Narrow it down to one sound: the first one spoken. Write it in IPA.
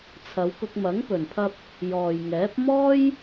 t͡sʰ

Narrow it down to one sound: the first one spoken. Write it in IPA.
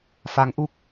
f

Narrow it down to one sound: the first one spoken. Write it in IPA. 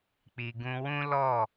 k͡p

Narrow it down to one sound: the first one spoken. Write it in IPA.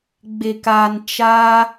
ɡ͡b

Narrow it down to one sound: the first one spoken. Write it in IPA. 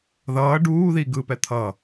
ð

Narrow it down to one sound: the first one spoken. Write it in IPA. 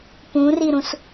p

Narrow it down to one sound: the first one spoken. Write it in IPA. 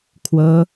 kʰ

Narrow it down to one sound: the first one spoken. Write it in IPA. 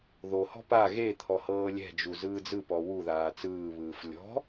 ð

